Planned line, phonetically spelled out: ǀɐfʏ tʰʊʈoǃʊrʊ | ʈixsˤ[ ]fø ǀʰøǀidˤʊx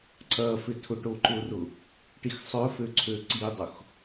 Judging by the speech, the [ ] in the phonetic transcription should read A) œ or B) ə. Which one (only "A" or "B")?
A